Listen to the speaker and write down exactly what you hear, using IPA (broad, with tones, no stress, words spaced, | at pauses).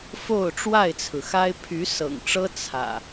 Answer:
fo˥˨ʊ̯ʈ͡ʂwa˥˨ɪ̯t͡sʰɹ̩˩xa˦ɪ̯ pʰy˨˦ sɤ̰˨˩ŋʈ͡ʂɤ˦ t͡sʰä̰˨˩